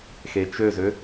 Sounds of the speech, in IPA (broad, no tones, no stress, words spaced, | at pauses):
xet͡ʃøzø